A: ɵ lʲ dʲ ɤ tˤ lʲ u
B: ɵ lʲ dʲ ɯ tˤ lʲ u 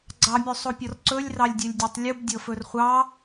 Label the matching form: A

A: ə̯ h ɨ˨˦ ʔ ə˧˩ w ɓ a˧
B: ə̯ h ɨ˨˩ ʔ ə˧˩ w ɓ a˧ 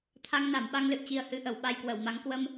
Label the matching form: B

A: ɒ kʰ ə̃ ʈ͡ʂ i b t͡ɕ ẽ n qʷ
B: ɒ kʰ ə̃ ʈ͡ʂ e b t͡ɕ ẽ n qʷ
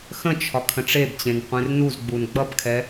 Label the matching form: B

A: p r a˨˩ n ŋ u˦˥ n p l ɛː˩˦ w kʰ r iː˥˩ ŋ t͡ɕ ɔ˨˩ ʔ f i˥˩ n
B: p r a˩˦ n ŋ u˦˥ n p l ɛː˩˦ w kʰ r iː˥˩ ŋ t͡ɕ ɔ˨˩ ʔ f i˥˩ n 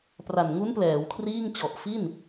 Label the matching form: A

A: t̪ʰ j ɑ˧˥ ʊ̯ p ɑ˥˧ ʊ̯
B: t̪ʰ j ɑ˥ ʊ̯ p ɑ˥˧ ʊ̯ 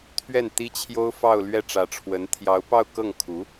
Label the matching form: A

